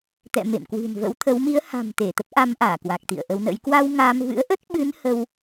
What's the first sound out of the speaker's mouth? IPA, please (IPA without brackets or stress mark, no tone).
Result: t̪